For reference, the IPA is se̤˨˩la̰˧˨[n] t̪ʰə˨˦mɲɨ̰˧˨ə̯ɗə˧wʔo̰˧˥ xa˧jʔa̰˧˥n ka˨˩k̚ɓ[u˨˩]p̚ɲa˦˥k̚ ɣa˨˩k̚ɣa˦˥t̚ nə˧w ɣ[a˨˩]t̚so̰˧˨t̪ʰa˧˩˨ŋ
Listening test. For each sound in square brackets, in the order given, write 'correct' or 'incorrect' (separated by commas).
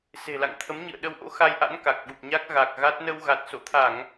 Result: incorrect, correct, correct